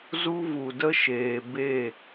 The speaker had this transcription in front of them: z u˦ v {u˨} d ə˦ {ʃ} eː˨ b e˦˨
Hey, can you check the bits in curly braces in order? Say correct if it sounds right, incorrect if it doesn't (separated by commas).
correct, correct